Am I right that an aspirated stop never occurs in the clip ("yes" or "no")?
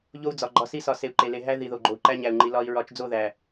yes